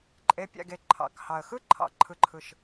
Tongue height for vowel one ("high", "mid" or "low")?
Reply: mid